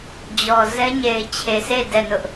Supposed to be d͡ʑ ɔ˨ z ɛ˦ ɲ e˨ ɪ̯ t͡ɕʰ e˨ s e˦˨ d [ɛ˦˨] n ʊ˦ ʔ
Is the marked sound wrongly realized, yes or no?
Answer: no